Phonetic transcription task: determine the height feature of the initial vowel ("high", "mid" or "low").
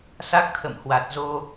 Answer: low